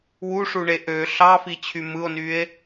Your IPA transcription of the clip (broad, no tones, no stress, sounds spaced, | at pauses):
w u ʂ u ɳ e ʔ ø ɬ ɑ f i t͡ɕʰ y m ɯ o̯ n y e̯